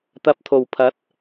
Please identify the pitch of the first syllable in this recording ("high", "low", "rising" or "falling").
rising